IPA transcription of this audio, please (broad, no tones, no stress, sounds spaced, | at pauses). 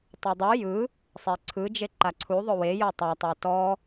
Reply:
tˤ o dˤ u j ɯ | sˤ e ǀʰ ɯ d͡ʒ e ǃ a ǀʰ u ðˤ o w e j ɤ tˤ a tˤ o t ɔ